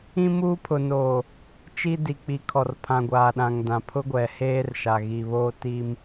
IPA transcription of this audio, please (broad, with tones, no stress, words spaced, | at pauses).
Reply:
ĩ˦muː˦pʰʊ˨noː˨ | t͡ʃi˦di˨k͡pi˨ kʰɔ˨rpʰã˨ɡʷaː˨ ɗã˨ŋdã˨ pʰʊ˦ɡʷɛ˨heː˦rʃa˨ ɣi˨ βoː˦ti˦m